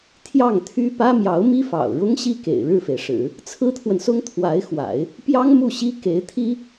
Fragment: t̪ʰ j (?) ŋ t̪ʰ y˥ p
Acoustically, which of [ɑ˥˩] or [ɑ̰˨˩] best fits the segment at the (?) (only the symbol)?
ɑ˥˩